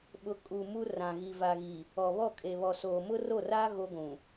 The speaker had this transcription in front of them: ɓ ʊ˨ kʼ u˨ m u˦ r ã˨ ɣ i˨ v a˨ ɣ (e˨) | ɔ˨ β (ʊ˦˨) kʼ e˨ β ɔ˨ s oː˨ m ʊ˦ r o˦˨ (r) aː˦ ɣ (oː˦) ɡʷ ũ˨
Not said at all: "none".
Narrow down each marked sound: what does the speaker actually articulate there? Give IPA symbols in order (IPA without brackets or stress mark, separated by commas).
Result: i˨, ɔ˦˨, r, o˦